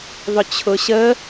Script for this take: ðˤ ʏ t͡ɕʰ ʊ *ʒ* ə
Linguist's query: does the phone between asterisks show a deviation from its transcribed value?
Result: yes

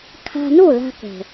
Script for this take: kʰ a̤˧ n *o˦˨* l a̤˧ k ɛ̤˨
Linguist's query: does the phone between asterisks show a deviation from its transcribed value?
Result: no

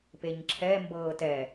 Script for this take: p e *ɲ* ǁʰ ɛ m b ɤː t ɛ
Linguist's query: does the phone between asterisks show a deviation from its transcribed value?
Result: no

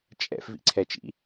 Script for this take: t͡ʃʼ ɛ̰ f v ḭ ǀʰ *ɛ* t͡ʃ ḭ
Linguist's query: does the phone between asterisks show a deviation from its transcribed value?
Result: no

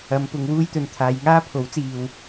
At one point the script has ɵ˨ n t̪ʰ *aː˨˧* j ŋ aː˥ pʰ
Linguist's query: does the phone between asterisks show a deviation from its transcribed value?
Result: no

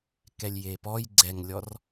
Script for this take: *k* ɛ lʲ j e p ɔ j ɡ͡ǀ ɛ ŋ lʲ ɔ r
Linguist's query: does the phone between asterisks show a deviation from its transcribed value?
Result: no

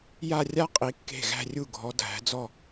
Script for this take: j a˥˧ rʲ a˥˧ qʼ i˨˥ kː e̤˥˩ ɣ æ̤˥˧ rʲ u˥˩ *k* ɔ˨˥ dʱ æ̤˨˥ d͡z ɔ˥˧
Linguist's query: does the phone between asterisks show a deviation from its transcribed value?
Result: yes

